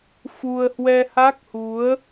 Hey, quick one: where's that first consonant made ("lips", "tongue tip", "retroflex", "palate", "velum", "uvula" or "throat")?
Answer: lips